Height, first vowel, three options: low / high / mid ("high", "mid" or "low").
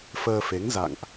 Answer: mid